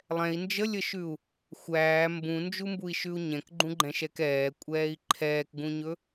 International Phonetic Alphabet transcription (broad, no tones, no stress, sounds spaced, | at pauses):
lˠ ɛ̃ i̯ n d͡ʒ ə lʲ ə ʃ ʉ u̯ | xʷ æː m b ũ n d͡ʒ u m b u i̯ ʃ ʉ u̯ ɲ ɛ̃ k ɡ͡ǃ ũ ɡ͡ǃ ɛ̃ ʃ ɛ k ɛː kʷʼ ɛː i̯ ǃʰ ɛː k ɡ ũ ɲ ɵ